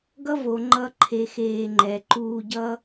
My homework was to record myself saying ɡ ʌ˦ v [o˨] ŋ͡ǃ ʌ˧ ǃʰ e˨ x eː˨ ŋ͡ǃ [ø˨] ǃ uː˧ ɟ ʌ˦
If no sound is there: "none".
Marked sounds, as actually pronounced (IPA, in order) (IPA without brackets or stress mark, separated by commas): o˨, ɛ˨